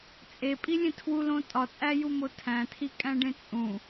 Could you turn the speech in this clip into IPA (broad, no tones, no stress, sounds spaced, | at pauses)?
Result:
t͡sʼ e pʼ i lʲ ẽ tʰ w u l õ tʼ ɒ t͡sʼ æ j u m o tʰ æ̃ tʰ i kʼ æ̃ ɖ ẽ t͡sʼ ũ